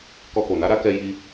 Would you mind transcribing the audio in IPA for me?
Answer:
k ɔ˧ k o˨ n a˨˦ ɾ a˦ k ɛ˧ j i˧

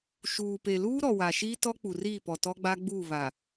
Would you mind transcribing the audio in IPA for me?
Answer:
ʃ uː˨ p e˨ l uː˦ ɾ ɔ˨ w a˨ ʃ iː˦ t ɔ˦ k͡p u˨ r iː˦˨ p ɔ˨ t ɔ˦ ɡ͡b a˦ ɡ͡b uː˦˨ β a˨

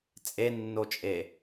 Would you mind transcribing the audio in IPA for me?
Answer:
t͡sʼ e nː o t͡ʃʼ e

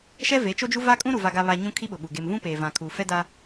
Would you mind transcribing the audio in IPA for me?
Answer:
ʃ ɛ˦ v e˨˦ t͡ʃ o˦ d͡ʒ u˦ v a˦ kʼ ũ˦ ɾ u˨ v a˨ ɡ a˨ β a˨ ɲ ũ˦ kʰ i˦ ɓ ʊ˨ ɓ u˨ ɡ e˨ m v ũ˦ p e˨ v ã˨ kʰ uː˨ f ɛ˦ d a˦

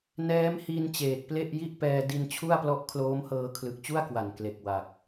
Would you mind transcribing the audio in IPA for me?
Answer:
n ɛː˦˥ m h i˧ n t͡ɕ eː˨˩ k̚ p l e˥˩ ʔ j i˥˩ ʔ p ɛː˧ d i˧ n t͡ɕʰ u˥˩ a̯ p l ɔ˦˥ ʔ kʰ l oː˦˥ m h ɤː˧ kʰ l ɯ˨˩ k̚ t͡ɕ u˥˩ a̯ k w a˨˩ n k l e˨˩ k̚ w a˨˩ k̚

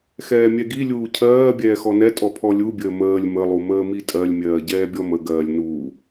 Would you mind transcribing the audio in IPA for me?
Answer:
x ɛː mʲ ɛ ɡ i lʲ uː cʰ ɜː bʲ ɛː x ɔ n ɛ tʼ ɔ pʰ ɔ lʲ u bʲ əː m əː lʲ m ə lˠ u m əː m i tʼ ɜ lʲ mʲ ɜː ɟ ɛː bʲ ɔ m ə ɡ ɜː lʲ n uː

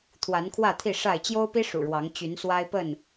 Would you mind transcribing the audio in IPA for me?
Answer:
t̪ʰ w a˨˦ n kʰ w ä˥˨ t̪ʰ i˥˨ ʂ a˥˨ ɪ̯ t͡ɕ j o˦ ʊ̯ p i˦ ʂ ṵ˨˩ ɻ w ɑ˨˦ ŋ t͡ɕ y˨˦ n s w a˦ ɪ̯ p ə˥˨ n

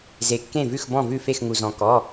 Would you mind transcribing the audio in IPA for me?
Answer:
z e˧˩ kː ẽ˥˨ v ʉ˥˨ x b ɔ̃˥˨ v ʉ˥˨ f e˥˨ x ŋ u˧ z ɔ̃˧ k ɔ˧˥˧

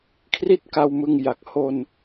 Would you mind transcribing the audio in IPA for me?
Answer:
kʰ r i˥˩ t̚ k a˧ w m ɯ˧ ŋ j a˨˩ k̚ h o˧ n

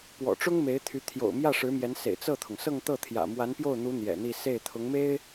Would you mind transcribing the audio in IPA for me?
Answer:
p w ɔ̰˨˩ ʈ͡ʂ ʊ˥ ŋ m e˧˥ ɪ̯ t̪ʰ y˧˥ t̪ʰ j o̰˨˩ ʊ̯ m j ä˥˩ ʂ ɻ̩˧˥ m j ɛ˧˥ n s ḛ˨˩ ɪ̯ t͡s ɤ˥˩ t̪ʰ ʊ˩ ŋ s ɤ˥˧ ŋ t̪ ɤ˥˩ t̪ʰ j ä̰˨˩ m w a˧˥ n p j o˥˩ ʊ̯ n̪ u˧˥ n̪ j ɛ̰˨˩ n̪ i˥˧ s e˥˩ ɪ̯ t̪ʰ ʊ˧˥ ŋ m e˥ ɪ̯

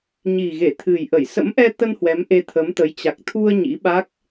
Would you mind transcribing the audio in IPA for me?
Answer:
ɲ i˨˩ ɣ e˧˩ t̪ʰ ɨ˨˩ j ʔ ə˧˩ j s ə̰˧˥ m ʔ ɛ˧ t̪ ə˧ n h w ɛ˨˦ m ʔ e˧ t̪ʰ ə˨˦ m t̪ ə˨˦ j t͡ɕ a˨˩ k̚ t̪ʰ u˧ ə̯ ɲ ḭ˧˥ ɓ a˦˥ k̚

